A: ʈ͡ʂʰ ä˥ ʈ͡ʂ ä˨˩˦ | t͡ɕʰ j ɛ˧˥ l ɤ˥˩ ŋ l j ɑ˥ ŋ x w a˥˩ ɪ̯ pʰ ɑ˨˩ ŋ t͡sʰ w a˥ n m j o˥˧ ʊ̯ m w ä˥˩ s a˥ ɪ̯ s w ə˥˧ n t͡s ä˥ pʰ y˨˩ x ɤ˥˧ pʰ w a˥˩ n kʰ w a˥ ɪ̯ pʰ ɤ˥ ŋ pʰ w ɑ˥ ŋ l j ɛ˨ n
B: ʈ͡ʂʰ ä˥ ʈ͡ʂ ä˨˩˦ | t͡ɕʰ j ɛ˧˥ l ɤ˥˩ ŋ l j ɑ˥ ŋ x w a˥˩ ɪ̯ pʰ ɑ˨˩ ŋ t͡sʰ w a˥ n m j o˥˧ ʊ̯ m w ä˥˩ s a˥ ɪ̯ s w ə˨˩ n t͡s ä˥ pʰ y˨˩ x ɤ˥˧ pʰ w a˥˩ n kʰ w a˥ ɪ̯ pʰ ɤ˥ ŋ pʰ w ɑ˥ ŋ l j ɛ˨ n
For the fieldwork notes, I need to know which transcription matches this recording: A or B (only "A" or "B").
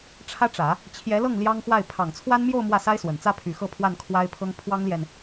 B